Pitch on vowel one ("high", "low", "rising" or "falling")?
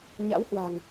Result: rising